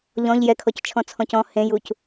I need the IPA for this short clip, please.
ʎɔ̃ʎ jɛkʰɔct͡ʃʰɔ̃t͡sʰɔ̃c ɔ̃ hẽjuc

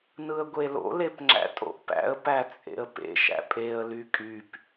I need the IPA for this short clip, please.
nɯə̯ɡʷelo̰ lepŋ͡ǁæ̰tʼo̰ʔpæ̰ə̯ pæt͡sʼḛə̯pḛ ʃæ̰pʼeə̯ lykʼyp

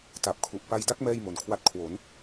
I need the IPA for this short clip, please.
ta˨˩p̚kʰu˨˩ʔpa˧jda˦˥k̚ mɛː˥˩jmo˨˩nkʰwa˦˥t̚kʰwo˩˦n

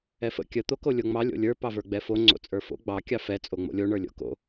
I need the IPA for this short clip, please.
ɛfə̰ kʲə t̪okolʲoŋ͡mɑ lʲo̰lʲə˞ pɑvə˞ɡ͡bɛfo ŋ͡ǀo̰t͡sʼə˞fo̰ ɡ͡bɑ kʲɑfɛ t͡sʼoŋ͡mo̰lʲo ɳə˞lʲo̰ko̰

